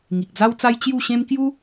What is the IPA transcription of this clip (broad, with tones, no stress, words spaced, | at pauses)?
ŋi˨k̚d͡za˦wt͡sa˦j t͡ɕju˥˧ɕẽ˦m kju˦